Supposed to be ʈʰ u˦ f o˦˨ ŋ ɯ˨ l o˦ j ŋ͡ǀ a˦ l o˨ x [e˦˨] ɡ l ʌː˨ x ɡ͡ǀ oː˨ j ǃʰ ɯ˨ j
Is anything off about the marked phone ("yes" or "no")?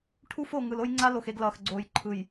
yes